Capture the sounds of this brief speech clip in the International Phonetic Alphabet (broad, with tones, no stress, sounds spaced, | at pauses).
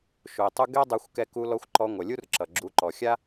ʃ u˨ ɪ̯ tˤ u˦ ɡ ɛ˦ dˤ a˧ xʷ k ɛ˧ k u˧ l ɔ˧ xʷ ǃ ɔ˧ ŋʷ ʌ˨ lʲ u˦ r ǁ ʌ˨ ɡ͡ǁ u˨˦ ǃ ɔ˨ xʲ a˦